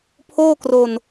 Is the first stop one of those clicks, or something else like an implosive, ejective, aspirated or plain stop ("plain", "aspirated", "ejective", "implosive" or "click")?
aspirated